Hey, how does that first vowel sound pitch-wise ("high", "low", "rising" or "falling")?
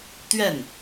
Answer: falling